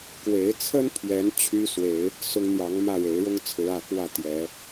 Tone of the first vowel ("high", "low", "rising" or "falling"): rising